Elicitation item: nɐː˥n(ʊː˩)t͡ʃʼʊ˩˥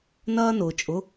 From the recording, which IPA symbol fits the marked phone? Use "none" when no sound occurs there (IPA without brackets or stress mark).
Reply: ʊː˩